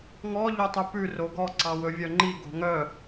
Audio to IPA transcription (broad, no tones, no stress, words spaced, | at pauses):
ŋɔ ʎøtˤypʉ roɡɔ ǀɑwɵvʲœŋ͡ǃi ɡo̤ŋœ